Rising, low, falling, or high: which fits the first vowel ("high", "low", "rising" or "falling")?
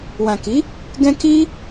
low